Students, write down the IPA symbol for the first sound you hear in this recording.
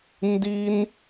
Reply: n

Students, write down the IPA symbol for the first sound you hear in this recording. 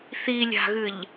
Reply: θ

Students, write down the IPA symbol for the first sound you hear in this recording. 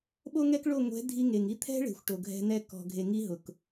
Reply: ɓ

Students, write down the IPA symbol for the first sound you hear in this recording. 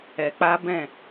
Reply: ɛ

